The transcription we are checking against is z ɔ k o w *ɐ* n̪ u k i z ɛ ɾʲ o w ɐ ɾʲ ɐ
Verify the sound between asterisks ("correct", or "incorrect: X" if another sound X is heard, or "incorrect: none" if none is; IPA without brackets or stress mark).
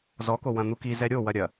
incorrect: ɐ̃